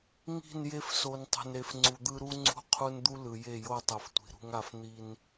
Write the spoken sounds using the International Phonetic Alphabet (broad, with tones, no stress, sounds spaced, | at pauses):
ŋ i̤˦˨ n j e˦ f s o˨ n tˤ ṳ˨ n ɾ e˨ f ŋ͡ǀ u˨ d̪ ɯ˦ ɾ u˦ ŋ͡ǀ ṳ˦ qʰ u˦ n d̪ u˦ l ɯ˨ j e˦˨ j o˦˨ tˤ ɯ˨ f tʷ i̤˨ ɾ ṳ˦ ŋ a˦ f n̪ i˦ n